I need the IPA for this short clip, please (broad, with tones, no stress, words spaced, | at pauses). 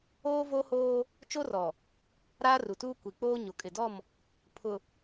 oː˦ vo˦hoː˦ | t͡ʃo˦rɔ˨ | ɾaː˦ru˨tuː˦ kʷi˨k͡poː˦ ɲo˨kʼɪ˨dɔ˦˨m | pʰʊ˨